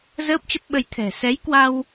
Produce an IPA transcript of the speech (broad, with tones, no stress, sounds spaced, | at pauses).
z əː˦˥ p̚ t͡ɕ ə˦˥ p̚ ɓ ə˧ j t̪ʰ ɛ̤˨˩ s ɛ˨˦ j k w a˧ w